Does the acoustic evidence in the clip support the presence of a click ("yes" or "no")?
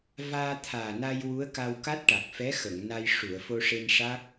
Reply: no